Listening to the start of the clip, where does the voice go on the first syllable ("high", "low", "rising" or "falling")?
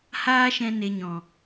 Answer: high